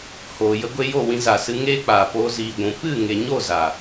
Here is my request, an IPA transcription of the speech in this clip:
h oː˨ j ə˧ ɡʷ e˧ j o˦˨ w ĩ˧ z a˨ s ɨ˧ ŋ eː˦ k͡p aː˨ p oː˧ z iː˨ ɡʷ ũ˨ p ɨ˦˨ ŋ e˨ ɲ o˦˨ z a˨

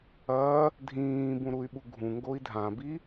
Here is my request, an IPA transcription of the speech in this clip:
ɐ | dʱ ĩː b ũ ɾ u y̯ ɓ u ɡʱ ũ ŋ ɡ o i̯ dʱ ã b i

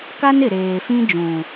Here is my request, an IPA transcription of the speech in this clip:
k a˦ n ɪ˨ ɾ eː˨ f ĩ˦ d͡ʒ ũ˨

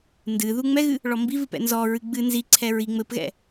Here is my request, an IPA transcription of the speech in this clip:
n d ɨ ð u ŋ͡m ɛ ɣ ɨ | ɭ ɔ m b i v ɨ p ɛ̰ n z ɔ ɹ ɨ ɡ͡b ɨ n z i ǀʰ ɛ ɹ i ŋ͡m ɘ p ɣ ɛ̰

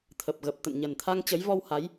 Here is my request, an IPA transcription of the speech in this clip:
t̪ʰ ə˨˩ p̚ ɣ ə˨˩ p̚ t̪ ə̰˧˨ n ɲ ə˨˩ n t̪ʰ a˧ ŋ t͡ɕ ə˨˦ j v ɔ˧ w h a˨˦ j

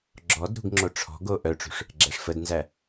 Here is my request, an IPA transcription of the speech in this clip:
ɡ͡ǁ ɔ d ɾ ṳ ɡ ŋ͡ǁ o ʈ͡ʂʰ ɔ̤ ɡ o ʔ œ ʈ͡ʂ ṳ ʂ | ɡ͡ǁ æ ʂ f ə d n z æ

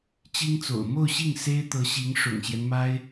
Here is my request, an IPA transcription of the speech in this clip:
t͡ɕ i˥ ŋ t͡s o̰˨˩ ʊ̯ m o˥˧ ʊ̯ ɕ i˥˩ ŋ s e˥ ɪ̯ t̪ ɤ˧˥ ɕ i˧˥ ŋ ʂ ʊ̰˨˩ ŋ ɕ j ɛ˦ n m a˥ ɪ̯

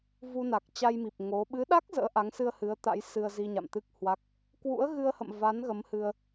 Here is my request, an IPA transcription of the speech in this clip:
v u˧ n a˨˩ k̚ t͡ɕ a˧ j m i˨˩ p̚ ŋ o˨˦ ɓ ɨ˨˦ ɗ a˦˥ k̚ z ə̰ː˧˥ ʔ a˨˦ ŋ s ɨ˧ ə̯ h ɨ˨˦ ə̯ t̪ a̰˧˥ j s ɨ˧ ə̯ z i˧ ɲ a̰˧˨ m t̪ ɨ˦˥ k̚ h w a˦˥ k̚ | k w ṵ˧˥ ə̯ ɣ ɨ˧ ə̯ h ə̰˧˨ m v a˨˦ n ɣ ə˨˦ m h ɨ˧ ə̯

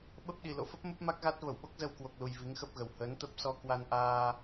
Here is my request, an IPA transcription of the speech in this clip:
ɓ ə˦˥ p̚ ɗ i˨˩ l o̰˧˨ f ə˦˥ p̚ m ə˦˥ p̚ m a˦˥ k̚ ɣ a˦˥ t̚ v ə˧˩ w ɓ o˦˥ k̚ z ə˧ w k w o˨˩ k̚ l u˨˩ j v i˨˦ ŋ x ə˦˥ p̚ ɣ ə˨˩ w h əː˨˦ n t̪ ə˦˥ p̚ s ɔ˧ k w a˧ n ʔ aː˧

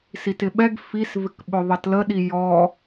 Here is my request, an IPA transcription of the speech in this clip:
s i t ɪ ɓ ɛ ɡ f i s v ɪ k ɓ ʊ ðˤ ʌ t l ə ɗ i j ɔ

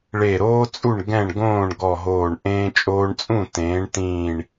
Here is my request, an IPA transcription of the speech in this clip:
ɭ e˧˩ ɾ oː˥ t͡sʼ u˥˩ ɳ ɡ ɛ̃˥˩ ɳ ɡ õː˥˩ ɳ ɡ ɔ˧˩ ɦ oː˧˩ ɳ ʔ ẽː˧ t͡ʃʼ oː˧ ɳ t͡sʼ ũ˥˩ t ẽː˩˥ ɳ t ĩː˧˩ ɳ

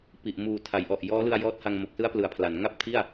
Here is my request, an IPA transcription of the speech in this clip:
p i˨˩ ʔ m uː˨˩ tʰ a˩˦ j ʔ ɔ˨˩ ʔ j ɔː˦˥ l ɯ˧ a̯ j ɔː˦˥ t̚ h a˧ ŋ m o˨˩ k̚ s ɯ˦˥ a̯ p l ɯ˩˦ a̯ pʰ l a˩˦ n ŋ a˥˩ p̚ tʰ i˥˩ a̯

